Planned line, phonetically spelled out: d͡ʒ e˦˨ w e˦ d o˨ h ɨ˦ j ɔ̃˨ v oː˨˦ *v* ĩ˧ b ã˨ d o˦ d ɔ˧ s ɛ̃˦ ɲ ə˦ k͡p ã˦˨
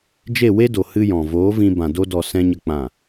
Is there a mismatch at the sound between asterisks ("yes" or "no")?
no